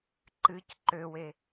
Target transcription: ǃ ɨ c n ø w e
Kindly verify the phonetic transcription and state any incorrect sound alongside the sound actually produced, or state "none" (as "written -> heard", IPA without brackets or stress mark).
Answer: n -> ǃ